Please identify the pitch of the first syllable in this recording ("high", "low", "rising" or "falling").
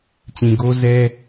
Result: low